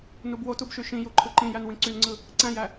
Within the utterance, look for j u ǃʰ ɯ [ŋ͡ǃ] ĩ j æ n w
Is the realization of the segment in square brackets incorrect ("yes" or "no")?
yes